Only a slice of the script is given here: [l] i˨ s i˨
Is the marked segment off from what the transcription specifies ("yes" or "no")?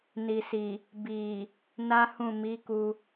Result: yes